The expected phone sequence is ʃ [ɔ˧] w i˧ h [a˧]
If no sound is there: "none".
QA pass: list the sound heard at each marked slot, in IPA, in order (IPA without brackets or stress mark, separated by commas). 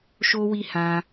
o˧, ã˧